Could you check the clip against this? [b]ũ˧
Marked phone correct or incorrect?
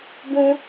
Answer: correct